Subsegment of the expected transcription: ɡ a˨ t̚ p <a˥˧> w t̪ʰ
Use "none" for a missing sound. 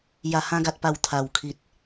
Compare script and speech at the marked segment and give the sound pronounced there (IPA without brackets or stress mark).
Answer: a˨˩